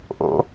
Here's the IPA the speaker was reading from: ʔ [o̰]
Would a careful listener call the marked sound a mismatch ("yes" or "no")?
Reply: no